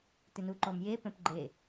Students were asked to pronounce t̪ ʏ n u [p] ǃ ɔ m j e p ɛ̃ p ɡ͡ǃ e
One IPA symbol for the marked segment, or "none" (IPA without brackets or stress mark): none